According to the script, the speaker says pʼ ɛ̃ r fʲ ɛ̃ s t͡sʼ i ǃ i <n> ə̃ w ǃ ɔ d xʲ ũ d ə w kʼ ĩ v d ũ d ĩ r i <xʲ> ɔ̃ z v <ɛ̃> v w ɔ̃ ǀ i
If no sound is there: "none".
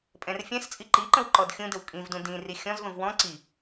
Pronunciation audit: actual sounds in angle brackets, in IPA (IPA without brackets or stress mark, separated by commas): ǃ, xʲ, ə̃